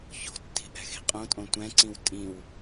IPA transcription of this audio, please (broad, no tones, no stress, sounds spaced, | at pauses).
ç o̤ tː i̤ ʔ ɛ̤ x i̤ qʼ õ tʼ õ tʷ ɛ̃ ǀ ĩ w tʼ ĩ w